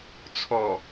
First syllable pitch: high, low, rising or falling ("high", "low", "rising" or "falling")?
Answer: low